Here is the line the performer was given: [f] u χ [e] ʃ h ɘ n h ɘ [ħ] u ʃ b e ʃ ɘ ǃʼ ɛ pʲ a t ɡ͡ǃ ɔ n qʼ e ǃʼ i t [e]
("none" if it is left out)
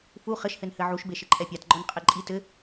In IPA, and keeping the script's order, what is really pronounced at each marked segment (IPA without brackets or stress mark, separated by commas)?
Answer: f, ɘ, ʕ, ɘ